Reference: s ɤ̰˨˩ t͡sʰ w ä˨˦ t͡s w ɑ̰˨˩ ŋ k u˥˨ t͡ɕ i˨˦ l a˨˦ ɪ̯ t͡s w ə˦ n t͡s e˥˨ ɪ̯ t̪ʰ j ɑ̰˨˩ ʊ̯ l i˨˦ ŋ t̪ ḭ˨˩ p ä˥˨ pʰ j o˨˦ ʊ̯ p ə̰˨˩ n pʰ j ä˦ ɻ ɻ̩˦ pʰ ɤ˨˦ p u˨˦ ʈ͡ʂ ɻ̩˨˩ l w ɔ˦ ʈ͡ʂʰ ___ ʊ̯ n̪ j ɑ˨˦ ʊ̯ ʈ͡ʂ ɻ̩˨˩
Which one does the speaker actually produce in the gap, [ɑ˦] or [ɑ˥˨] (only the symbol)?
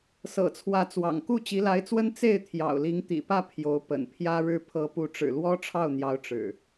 ɑ˥˨